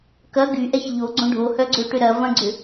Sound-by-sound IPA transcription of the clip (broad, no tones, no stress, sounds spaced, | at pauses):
k ɐ ɡ y ʔ ɛ ç ʎ o ɡ͡ǀ õ ɖʱ o h œ ɡ͡ǀ ø ʈ ʏ ɾ ɐ v ɐ̃ ɡ͡ǀ ʏ